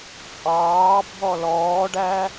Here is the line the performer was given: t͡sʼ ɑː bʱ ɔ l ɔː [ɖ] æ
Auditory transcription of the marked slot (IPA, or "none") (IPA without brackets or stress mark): ɖ